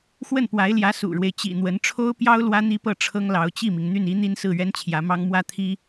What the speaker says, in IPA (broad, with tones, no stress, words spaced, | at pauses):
xwə˥˩npwa˧˥ɪ̯ljä˧˥ sṵ˨˩ɻwe˦ɪ̯t͡ɕḭ˨˩n̪wə˧˥n ʈ͡ʂʰo˥ʊ̯pjɑ˥ʊ̯ lwä˥n̪i˥pɤ˥˩ ʈ͡ʂʰɤ˥ŋlɑ˧˥ʊ̯t͡ɕi˥˩mi˩ŋ n̪y˥˩ni˥n̪i˥nsɹ̩˥˩ ɥɛ˥nt͡ɕʰjä˧˥mɑ˥ŋ mwä˥˩ t̪ʰi˥